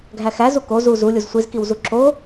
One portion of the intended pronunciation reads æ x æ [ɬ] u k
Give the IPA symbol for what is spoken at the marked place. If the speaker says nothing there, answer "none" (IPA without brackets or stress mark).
z